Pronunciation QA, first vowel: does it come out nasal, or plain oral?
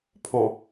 nasal